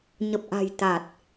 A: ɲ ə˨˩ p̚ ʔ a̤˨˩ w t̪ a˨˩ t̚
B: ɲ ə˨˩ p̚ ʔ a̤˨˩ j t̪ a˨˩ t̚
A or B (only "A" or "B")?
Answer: B